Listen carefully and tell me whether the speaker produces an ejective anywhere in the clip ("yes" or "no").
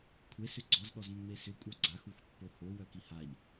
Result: yes